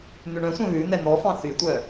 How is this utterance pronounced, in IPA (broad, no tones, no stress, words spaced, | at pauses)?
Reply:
n̪ʉɳœ̃sʷœ̃ βʉ n̪ɛn̪ɔfɑ̃ θytʷœ